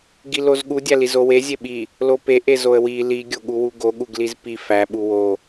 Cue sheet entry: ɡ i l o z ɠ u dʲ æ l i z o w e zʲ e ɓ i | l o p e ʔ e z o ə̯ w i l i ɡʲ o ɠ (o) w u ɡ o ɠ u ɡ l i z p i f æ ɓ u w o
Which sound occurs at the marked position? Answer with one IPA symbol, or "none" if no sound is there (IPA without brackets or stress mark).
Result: u